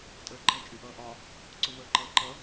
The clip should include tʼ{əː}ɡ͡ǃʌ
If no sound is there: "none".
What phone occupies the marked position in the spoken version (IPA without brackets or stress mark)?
əː